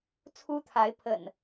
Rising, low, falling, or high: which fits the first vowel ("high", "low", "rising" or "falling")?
high